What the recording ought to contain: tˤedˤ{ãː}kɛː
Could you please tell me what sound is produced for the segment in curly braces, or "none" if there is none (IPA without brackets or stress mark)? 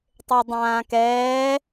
ãː